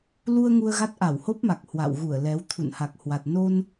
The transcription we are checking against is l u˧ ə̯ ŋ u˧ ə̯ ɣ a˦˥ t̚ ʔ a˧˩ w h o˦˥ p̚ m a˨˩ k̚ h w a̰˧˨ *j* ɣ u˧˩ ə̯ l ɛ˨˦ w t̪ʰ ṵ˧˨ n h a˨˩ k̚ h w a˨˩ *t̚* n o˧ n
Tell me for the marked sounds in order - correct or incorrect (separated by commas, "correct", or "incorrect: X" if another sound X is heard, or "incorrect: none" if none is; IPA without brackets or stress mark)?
incorrect: w, correct